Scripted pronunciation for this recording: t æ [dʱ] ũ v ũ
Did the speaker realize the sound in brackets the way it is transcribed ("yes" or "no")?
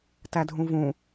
yes